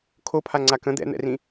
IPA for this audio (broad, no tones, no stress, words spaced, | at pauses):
kʰopʰaŋ͡ǀa kə̃ d̪ɛ̰n̪ɛ̰rĩ